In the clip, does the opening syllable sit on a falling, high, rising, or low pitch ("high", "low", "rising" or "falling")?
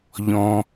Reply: low